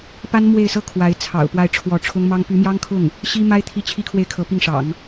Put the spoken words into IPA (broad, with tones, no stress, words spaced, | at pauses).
pa˥nmwe˥˩ɪ̯sɤ˥ kʰwa˧˥ɪ̯t͡sʰɑ̰˨˩ʊ̯ pwa˥˩ɪ̯ʈ͡ʂʰwɔ˧˥ʈ͡ʂʰʊ˥ŋmɑ˥ŋ py˧˥mjɑ˥ŋkʰʊ˥˩ŋ | ɕi˥ma˥ɪ̯ t̪ʰi˥˩t͡ɕʰi˥kʰwe˥˩ɪ̯ kʰɤ˧˥pi˥˩ŋʂɑ̰˨˩˦ŋ